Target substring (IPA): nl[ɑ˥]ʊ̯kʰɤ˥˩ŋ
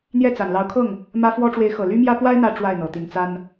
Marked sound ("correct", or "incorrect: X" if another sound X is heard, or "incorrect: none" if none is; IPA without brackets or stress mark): incorrect: ɑ˧˥